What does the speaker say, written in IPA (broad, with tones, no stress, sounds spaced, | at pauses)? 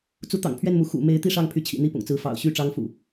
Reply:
t͡s u˨˦ t̪ ɑ̰˨˩ ŋ pʰ ɥ ɛ˥˨ n m u˨˦ x ṵ˨˩ m e˨˦ ɪ̯ t̪ i˥˨ ʂ ɑ˥˨ ŋ pʰ y˨˦ t͡ɕʰ ḭ˨˩ n̪ i˥˨ p ʊ̰˨˩ ŋ t͡s ɹ̩˨˦ f ɑ̰˨˩ ʊ̯ ɕ y˥˨ ʈ͡ʂ ɑ˦ ŋ f ṵ˨˩